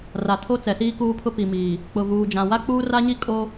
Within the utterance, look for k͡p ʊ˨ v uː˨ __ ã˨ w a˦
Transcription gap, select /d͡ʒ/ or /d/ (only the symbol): d͡ʒ